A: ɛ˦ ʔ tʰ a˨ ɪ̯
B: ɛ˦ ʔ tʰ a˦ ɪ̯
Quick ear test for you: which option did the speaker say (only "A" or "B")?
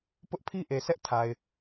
A